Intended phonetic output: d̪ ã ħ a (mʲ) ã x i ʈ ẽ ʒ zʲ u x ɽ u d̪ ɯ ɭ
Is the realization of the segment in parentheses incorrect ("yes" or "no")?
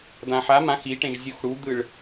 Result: yes